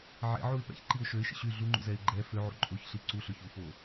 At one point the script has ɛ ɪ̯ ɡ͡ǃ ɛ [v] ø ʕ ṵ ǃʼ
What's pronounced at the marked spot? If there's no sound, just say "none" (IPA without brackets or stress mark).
f